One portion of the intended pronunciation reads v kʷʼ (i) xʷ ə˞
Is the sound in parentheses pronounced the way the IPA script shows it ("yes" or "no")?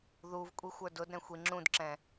yes